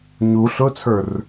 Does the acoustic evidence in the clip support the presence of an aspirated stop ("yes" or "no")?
yes